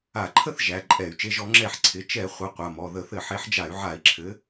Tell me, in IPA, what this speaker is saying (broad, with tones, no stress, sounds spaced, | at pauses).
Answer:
a˧˩˧ ǃʰ ə˥˨ θ ʒ æ˩˧˩ ǃʼ ɛ˧˩˧ y̯ t͡ʃ e˩˧˩ ʒ ɔ˧˩˧ ŋ͡ǁ ɛ˧˩˧ ħ ǀʰ ɪ˩˧˩ t͡ʃ ɛ˧˩˧ χʷ ə˩˧˩ qʷ a˩˧˩ m ɔ˩˧˩ ð ə˧˩˧ θ ɘ˧˩˧ ħ e˨˦ ħ d͡ʒ a˧˩˧ y̯ ʕ a˧˩˧ i̯ ǁʰ ɘ˨˦